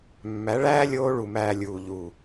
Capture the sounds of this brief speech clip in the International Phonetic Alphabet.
mːæ˨˦ɭæː˦ lʲoː˦ ɭu˧mæː˧ lʲuː˨ʎuː˨

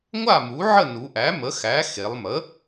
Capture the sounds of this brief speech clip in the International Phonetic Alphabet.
ŋʷa˥˩mu˩˥ʕə˥˩ nu˩˧ʔæ˩˥mə˩˥xæ˩˥ xe˩˧lˠmə˩˥

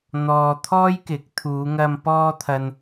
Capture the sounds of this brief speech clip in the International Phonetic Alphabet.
n̪ɔː˨ t̪ʰɔː˥jkɪ˨˥k̚t̪ʰuː˨˧ŋɐ˧m pɔː˧t̪ʰɐ˨n

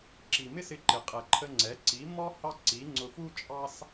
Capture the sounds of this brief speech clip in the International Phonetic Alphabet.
ǁi˨mɪ˦sɪ˧ǃɪ˨ qʼɛ˨ǃʰə˧ŋ͡ǀɛ˨˦ ǀi˨˦mɔ˦ hɑ˦ǀi˨˦ ŋ͡ǀʊ˧fu˦t͡ʃʼɑ˦s

